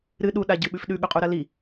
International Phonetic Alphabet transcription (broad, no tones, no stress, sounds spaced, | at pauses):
ɾ ɨ ɗ u ɗ a ɟ ɨ ɓ ʉ f ɗ ʉ ɠ ɵ qʼ u ɾ ɐ l i